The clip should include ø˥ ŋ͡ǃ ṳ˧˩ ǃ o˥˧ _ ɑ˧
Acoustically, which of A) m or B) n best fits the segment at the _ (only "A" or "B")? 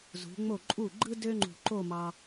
A